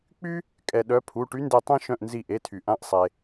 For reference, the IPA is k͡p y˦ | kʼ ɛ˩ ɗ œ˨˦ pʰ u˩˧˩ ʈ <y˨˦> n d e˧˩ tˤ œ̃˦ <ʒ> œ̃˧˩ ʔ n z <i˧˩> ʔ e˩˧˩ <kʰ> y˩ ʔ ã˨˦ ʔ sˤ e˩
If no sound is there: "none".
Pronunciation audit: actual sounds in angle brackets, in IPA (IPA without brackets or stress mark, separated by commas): y˨˦, ʃ, i˧˩, tʰ